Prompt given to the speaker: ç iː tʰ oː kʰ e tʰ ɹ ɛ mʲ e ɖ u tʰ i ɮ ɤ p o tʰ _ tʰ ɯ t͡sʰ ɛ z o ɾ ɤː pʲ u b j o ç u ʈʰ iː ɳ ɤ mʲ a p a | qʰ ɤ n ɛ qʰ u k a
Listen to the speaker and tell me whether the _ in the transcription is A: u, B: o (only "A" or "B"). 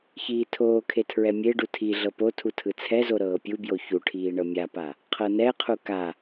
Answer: A